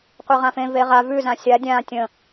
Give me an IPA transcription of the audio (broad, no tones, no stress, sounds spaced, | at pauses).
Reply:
qʷ e ʁ ã f ẽ v e ʁ a v ʉ z ã sʲ a dʲ ã tʲ ə̃